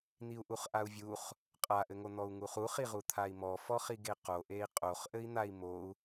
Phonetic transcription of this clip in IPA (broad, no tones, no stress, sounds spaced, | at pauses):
n̪ i u̯ ʔ u χ ʔ a u̯ vʲ u χ | qʼ a ʔ ɘ ŋ o n̪ ɔ u̯ ŋ u χ u χ i ʁ u t̪ʰ a i̯ m ɔ f ɔ χ i ɡ e q o ʔ e i̯ qʼ o χ ʔ ɘ i̯ n̪ a i̯ m o u̯